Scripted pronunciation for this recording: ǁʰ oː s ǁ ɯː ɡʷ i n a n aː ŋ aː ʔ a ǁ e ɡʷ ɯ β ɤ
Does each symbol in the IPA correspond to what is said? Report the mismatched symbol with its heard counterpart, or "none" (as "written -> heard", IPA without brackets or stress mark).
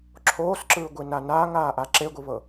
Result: none